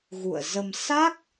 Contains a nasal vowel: no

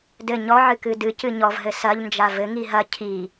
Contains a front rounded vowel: no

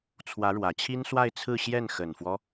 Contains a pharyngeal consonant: no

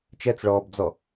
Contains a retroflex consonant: yes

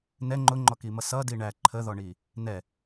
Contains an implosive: no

